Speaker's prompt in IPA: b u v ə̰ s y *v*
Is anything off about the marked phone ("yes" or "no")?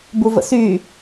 yes